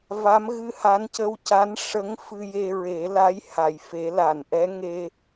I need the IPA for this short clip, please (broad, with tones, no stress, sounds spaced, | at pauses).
v a˧˥ m ɣ ɨ˧ h a˧˥ n c ə˧ w c a˧˥ n ʂ ə˧˥ ŋ f ɨ˧ j e˧ ɹ e˨˩˦ l a˧˥ j h a˨˩˨ j f e˨˩˦ l a˨˩˨ n ʔ ɛ˧˥ ŋ e˧